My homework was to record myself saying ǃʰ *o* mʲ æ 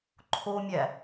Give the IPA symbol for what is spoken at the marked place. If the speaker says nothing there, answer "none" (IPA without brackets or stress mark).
o